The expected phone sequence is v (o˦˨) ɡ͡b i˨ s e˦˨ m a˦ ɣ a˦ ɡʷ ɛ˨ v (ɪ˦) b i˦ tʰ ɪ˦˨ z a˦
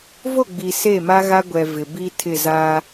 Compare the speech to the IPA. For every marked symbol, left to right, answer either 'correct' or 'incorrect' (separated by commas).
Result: correct, incorrect